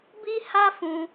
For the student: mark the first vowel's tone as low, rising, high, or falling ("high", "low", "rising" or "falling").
high